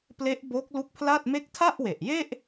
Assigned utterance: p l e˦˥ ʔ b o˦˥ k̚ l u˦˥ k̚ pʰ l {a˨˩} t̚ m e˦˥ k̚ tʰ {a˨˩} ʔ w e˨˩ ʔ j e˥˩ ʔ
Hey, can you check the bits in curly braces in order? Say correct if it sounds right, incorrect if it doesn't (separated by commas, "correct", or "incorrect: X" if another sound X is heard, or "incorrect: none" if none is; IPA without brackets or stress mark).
incorrect: a˥˩, incorrect: a˥˩